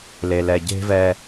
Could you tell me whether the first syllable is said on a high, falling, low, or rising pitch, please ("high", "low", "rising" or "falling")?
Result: low